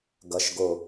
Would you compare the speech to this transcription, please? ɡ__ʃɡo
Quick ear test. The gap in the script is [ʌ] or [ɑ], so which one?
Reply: ʌ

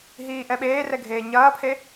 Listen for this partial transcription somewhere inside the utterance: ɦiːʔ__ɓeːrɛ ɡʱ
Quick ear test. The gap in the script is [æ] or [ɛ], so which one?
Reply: ɛ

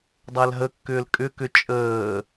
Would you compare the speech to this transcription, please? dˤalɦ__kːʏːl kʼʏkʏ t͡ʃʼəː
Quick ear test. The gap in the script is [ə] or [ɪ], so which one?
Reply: ə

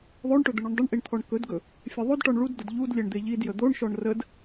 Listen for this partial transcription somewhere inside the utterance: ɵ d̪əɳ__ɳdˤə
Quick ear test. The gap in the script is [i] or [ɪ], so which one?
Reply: i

